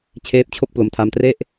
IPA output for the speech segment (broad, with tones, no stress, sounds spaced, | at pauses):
t͡ɕʰ eː˦˥ p̚ t͡ɕʰ o˥˩ k̚ p l o˧ m tʰ a˧ m t r e˥˩ ʔ